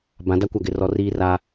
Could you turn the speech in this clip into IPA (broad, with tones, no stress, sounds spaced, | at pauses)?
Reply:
b ã˨˦ d a˦ kʷ a˦˨ ɡ ɪ˦˨ r ɔ˦ r iː˦ r a˦